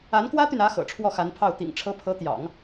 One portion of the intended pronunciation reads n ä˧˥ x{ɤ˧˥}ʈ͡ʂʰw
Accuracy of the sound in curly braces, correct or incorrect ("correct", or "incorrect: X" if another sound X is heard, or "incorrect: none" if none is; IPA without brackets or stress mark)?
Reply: incorrect: ɤ̰˨˩